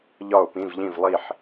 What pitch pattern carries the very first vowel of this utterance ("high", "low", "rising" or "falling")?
falling